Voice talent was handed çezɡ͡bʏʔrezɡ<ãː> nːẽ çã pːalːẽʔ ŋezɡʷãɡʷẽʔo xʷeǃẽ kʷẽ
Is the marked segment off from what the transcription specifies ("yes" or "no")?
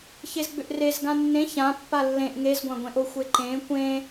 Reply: yes